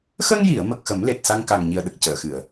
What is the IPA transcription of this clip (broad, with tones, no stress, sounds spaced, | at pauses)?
x ə˧ ŋ j i˨˩˨ ə̯ m ə˨˩ k̚ x ə˨˩˦ m l e˨˩ t̚ s a˧ ŋ k aː˨˩ ŋ ɲ i˨˩ ə̯ ɗ ə˨˩ k̚ c əː˨˩˨ x ɨ˨˩˨ ə̯